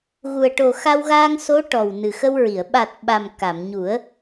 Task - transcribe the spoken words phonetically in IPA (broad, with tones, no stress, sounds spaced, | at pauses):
ɣ u˨˩ ə̯ ʈ o˨˩ x a˧ w ɣ a˧ ŋ s o˧˥ ʈ ɔ˨˩ w n ɨ˨˩ x ə˧ w ɹ i˨˩˨ ə̯ ɓ a˨˩ t̚ ɓ a˨˩ m k a˨˩˨ m ɲ u˨˩˦ ə̯